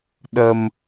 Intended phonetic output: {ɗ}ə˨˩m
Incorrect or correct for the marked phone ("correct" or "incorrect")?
correct